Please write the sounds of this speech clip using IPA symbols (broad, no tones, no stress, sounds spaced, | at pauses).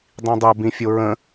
dˤ ĩ dˤ o b ĩ fʲ o ɹ ə̃